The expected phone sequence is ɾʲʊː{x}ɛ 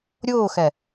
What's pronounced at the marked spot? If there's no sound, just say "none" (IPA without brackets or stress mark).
x